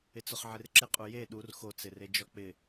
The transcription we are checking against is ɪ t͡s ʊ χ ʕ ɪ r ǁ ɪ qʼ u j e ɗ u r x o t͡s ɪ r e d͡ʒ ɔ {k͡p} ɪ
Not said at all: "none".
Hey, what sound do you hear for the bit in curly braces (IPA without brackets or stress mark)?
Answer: k͡p